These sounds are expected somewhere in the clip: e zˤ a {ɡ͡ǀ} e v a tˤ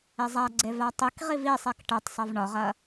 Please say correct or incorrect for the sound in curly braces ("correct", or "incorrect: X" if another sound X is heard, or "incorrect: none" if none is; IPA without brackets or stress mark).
correct